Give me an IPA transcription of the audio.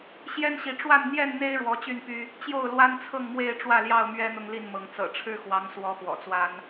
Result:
ɕ j ɛ˦ n ɕ i˨˦ ʈ͡ʂ w a˥˨ n n̪ j ɛ˥˨ n n̪ e˦ ɪ̯ ɻ w ɔ˨˦ t͡ɕ y˥˨ n p y˦ | t͡ɕ j o˥˨ ʊ̯ l w a˦ n t͡sʰ ɤ˥˨ ŋ m w e˥˨ ɪ̯ ʈ͡ʂ w ä˥˨ l j ɑ˥˨ ʊ̯ m ɥ ɛ˦ n̪ ʊ˦ ŋ l i˥˨ n m ɤ˨˦ ŋ t͡s ɤ̰˨˩ ʈ͡ʂʰ ɻ̩˦ x w ɑ˨˦ ŋ s w ɔ˨˦ x w ɔ̰˨˩ t͡s w a˦ n

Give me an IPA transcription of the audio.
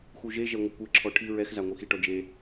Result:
x u ʒ e ʒ ɛ ŋʷ ɘ kʷ e ǁʰ ɔ ʈʰ i ɹ ɛ x z a ŋʷ ɨ x i ʈ ɔ d͡ʒ e

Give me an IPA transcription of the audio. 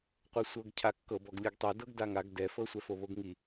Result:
qʷ e sʷ ɤ ɡ cʰ a kː ɤ b ɔ ɡ lʲ ɯ ɡ tˤ e d ɤ ɡ d a ŋ a ɡ d ɛ f ɤ sʷ ɛ f o β o ɡ ŋ i

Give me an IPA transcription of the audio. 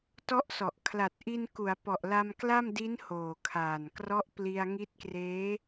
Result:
t ɔ˦˥ ʔ s ɔ˨˩ ʔ kʰ l a˨˩ t̚ ʔ i˧ n k u˩˦ a̯ p ɔ˨˩ ʔ l a˧ m k l a˥˩ m d i˦˥ n h oː˨˩ kʰ aː˨˩ n k r ɔ˦˥ ʔ p l i˧ a̯ ŋ i˦˥ t̚ k r eː˦˥

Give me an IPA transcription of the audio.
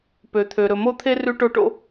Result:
p ø˨ t̪ʰ ø˨ ɾ ɵ˨ m o˦ t̪ʰ e˦ r ʉ˧ ʈ o˧ ʈ o̰˧

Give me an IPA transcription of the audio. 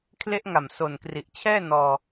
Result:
kʰ l e˦˥ ʔ ŋ a˨˩ m s o˨˩ n k r i˨˩ ʔ t͡ɕʰ ɛː˥˩ n ɔː˧

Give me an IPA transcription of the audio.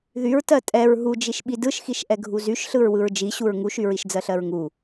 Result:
ð y ɹ t ɜ tʼ ɛ ɹ ɦ u d͡ʒ i ʃ ɓ i d ɯ ʃ x i ʃ ʔ ɛ ɡʱ u z y ʃ ɬ ɯ ɹ w ɯ ɹ d͡ʒ i ɕ u ɹ ŋ u ʃ y ɹ i ʃ d͡z ɜ ɬ ɜ ɹ ŋ u

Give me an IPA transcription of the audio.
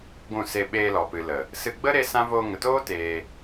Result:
ɡʷ ũ˦˨ s e˧ ɓ eː˧ l ɔ˨ p ɨ˨ l ə˨ | s ɨ˧ ɡ͡b ə˦ ɾ e˦ s ã˦ v oː˧ ŋ ə˨ t oː˦ t eː˧

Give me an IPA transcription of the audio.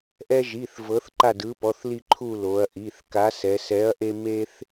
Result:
ʔ ɛ˦ ʒ i˩˧˩ θ v ɤ˨˥ θ ǃ a˦˨ d ɯ˨˥ p ɔ˩˧˩ θ l i˦˨ ǃʰ u˦˨ l o˩˧ ɐ̯ ʔ i˩˧˩ θ k a˨˥ s ɛ˩˧ s ɛ˨˥ ɐ̯ ʔ e˦ m e˦ θ

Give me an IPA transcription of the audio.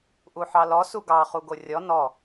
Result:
ʔ u ħ ɑ l ɔ s u ɡ ɑ χ u ɡ o rʲ ɔ n ɔ

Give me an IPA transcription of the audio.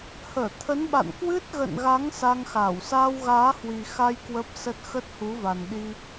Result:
h əː˧˩ t̪ʰ ə˨˦ n ɓ a̰˧˨ n k w ɨ˦˥ t̚ ɣ ə̰˧˨ n ɣ a˨˦ ŋ s a˧ ŋ x aː˧˩ w s aː˧ w ɣ aː˨˦ h w i˨˩ x a˧ j k w ə˦˥ p̚ s ə˦˥ t̚ x ə˦˥ t̚ h u˨˦ v a˨˩ n ɗ i˧

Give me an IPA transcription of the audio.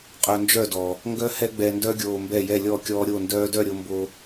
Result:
qʼ œ˧ n d͡ʒ œ˦˨ d ɔ˨ | ŋ ɡ œ˦ h ɛ˦ ɡ͡b ɛ˧ n d œ˦ ɡʲ oː˧ m b ɛ˦˨ j ɛ˦˨ lʲ ɔ˦˨ kʲ ɔː˧ ɾʲ o˦˨ n d œː˦ d œ˦˨ ɾʲ o˧ m b o˧

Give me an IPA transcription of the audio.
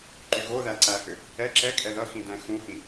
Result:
ǃ y ɣ o ð æ ǀ æ h ʏ | ɛ ǁ ɛ kʼ ɛ ð ʌ x ĩ d æ̃ x ũ h ĩ

